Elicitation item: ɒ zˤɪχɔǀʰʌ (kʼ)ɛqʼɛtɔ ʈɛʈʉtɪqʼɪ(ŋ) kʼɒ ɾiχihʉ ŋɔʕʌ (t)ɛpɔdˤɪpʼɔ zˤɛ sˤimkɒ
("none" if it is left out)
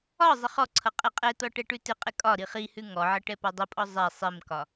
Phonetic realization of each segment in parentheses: qʼ, none, ʈ

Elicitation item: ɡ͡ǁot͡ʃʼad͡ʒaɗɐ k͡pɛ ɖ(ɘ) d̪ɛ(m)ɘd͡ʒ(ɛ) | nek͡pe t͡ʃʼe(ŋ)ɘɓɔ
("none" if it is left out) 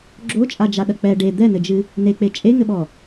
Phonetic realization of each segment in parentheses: e, n, ɨ, ŋ

